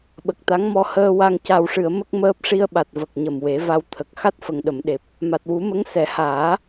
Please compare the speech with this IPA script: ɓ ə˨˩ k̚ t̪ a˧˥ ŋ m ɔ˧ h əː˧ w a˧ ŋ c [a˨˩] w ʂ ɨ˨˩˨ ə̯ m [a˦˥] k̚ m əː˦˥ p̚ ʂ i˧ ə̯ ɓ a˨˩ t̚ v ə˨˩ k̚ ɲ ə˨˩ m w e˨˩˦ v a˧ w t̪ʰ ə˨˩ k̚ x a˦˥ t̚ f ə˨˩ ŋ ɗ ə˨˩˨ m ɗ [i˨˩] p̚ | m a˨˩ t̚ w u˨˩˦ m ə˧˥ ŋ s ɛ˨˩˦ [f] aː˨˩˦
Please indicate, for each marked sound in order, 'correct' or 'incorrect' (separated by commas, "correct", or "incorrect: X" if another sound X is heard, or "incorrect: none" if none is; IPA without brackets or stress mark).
correct, incorrect: ə˦˥, incorrect: e˨˩, incorrect: h